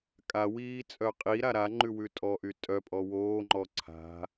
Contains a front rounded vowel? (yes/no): yes